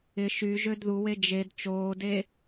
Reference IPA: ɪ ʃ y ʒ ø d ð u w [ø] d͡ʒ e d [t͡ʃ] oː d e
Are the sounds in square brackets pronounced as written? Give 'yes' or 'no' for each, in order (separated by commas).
no, yes